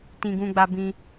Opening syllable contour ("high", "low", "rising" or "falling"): high